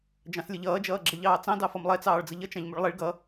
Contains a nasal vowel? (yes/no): yes